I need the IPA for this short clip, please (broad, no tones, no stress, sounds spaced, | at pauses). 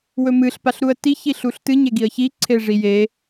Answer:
w ɵ m ɨ ɬ p a ɬ ɾ u ə̯ t i ç i ɬ u ɬ t ɨ ɲ e ɡ i ə̯ ç i ǀʰ e ʐ i j e